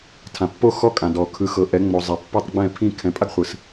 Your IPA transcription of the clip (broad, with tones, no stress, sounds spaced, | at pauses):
tʰ ã˩ pː o˥˩ x ɔ˥˩ kʼ ã˩ d ɔ˩ kʰ ɯ˩˥ x ɤ˩˥ ʔ ɛ˩˥ ŋ͡m o˩ zˤ e˩ pː o˥˩ tˤ ɡ͡b ɛ̃˥˩ pʰ ĩ˥˩ kʰ ɛ̃˩˥ pʼ a˥ ɡ χʷ ɯ˩ s